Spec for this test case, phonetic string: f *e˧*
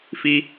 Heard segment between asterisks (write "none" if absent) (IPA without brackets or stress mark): i˧